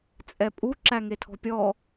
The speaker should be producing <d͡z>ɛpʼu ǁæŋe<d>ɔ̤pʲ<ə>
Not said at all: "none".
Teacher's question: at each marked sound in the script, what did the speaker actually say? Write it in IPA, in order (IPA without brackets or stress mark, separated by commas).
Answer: t͡sʼ, tʰ, ɔ